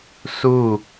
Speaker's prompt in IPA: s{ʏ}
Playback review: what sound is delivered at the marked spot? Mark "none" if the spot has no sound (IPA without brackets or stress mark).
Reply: u